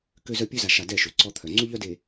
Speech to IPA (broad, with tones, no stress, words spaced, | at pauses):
kø˦zœ˦ pʲø˦za˨ʃa˨ dɛ˦˨ʃø˨ ǀɔ˦t̪ʰœ˨ ŋ͡ǀu˦ʎœ˦de˨